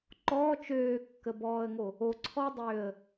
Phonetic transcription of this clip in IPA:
ǃ ɔː t͡ʃ øː kː ə b ɔː ə̯ ŋ o | o ǀʰ ɔ dˤ øː ə̯

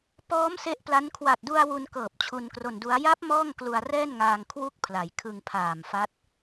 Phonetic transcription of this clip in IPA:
p ɔː˦˥ m s e˦˥ ʔ p l a˦˥ n kʰ w a˨˩ t̚ d u˧ a̯ w u˧ n k ɤː˨˩ p̚ t͡ɕʰ u˧ n k r o˧ n d u˦˥ a̯ j a˦˥ p̚ m ɔː˥˩ ŋ k l u˧ a̯ r ɛː˥˩ n ŋ aː˧ ŋ kʰ w u˥˩ k̚ pʰ l a˩˦ j kʰ ɯ˧ ŋ pʰ aː˨˩ m f a˦˥ t̚

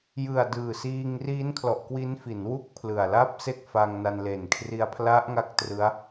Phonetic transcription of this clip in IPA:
j ɯ˨˩ a̯ d ɯː˨˩ s iː˧ ŋ r iː˦˥ n kʰ l ɔ˨˩ ʔ k w i˦˥ n f i˩˦ n w u˥˩ k̚ pʰ l ɯ˨˩ a̯ l a˥˩ p̚ s e˥˩ k̚ f a˧ ŋ n a˧ n l e˨˩ n kʰ r i˧ a̯ pʰ l a˦˥ ʔ ŋ a˥˩ k̚ t r ɯ˦˥ a̯

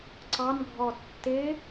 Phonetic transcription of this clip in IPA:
ǀ ɑ n ɡʱ ɔ tː ɪ

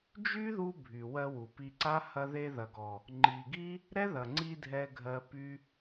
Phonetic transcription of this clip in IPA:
d͡ʒ y˦ ð u˧ bʱ y˨ w ɜ˧ w u˨ p i˧ ǀ a˦ h ɐ˧ ð e˧ ð ɐ˨ ɡ ɔ˨ | ŋ͡ǃ i˨ ɡ i˦ | ɾ ɛ˦ ð ɐ˨ ŋ͡ǀ i˧ dʱ ɛ˨ ɡʱ ɜ˨ p y˦

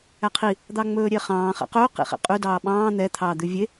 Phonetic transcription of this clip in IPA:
æ qʰ i | d̪ ɑ ŋ͡m ɵː ɾʲ e χ ɑ̃ː χ ɛ̰ q ɵː q ḭ χ ḭ qʼ ʉ d ɑː ɓ ɑ̃ː n̪ ɛ t̪ʰ ɑː d̪ ʉ vʲ e

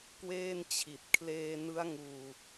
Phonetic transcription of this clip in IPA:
k w eː˥˩ n t͡ɕʰ i˨˩ t̚ kʰ l eː˧ n ɯ˦˥ a̯ ŋ uː˧

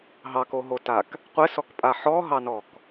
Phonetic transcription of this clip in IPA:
ɦ ɑ k o ɦ o t a k | qʷ ɘ s ɔ k pʼ a ħ ɔ ɦ ɑ n ɔ k

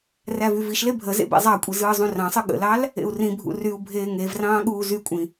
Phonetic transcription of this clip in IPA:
r æ v y v i ʃ l e bʱ ə z ḛ b ḛ zˤ ɑ kʷʼ i z ɯː zˤ ũ r ɑ̃ sˤ ɯ ɠ ə̰ l ɑ l | ḛ u̯ r ĩ bʱ ṵ r y u̯ bʱ eː ŋ e v r ɑ̃ː ɠ uː z y kʷʼ ĩ

